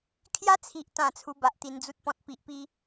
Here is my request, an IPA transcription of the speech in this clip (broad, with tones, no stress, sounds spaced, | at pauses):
kʰ j a˦ t͡sʰ i˨ ʔ t̪ ã˨˩ t͡sʰ u˧ b a˨ ʔ t̪ i˨˩ n d͡z u˦ t̚ p ɔ̃˨ t̚ p i˨ ʔ p i˦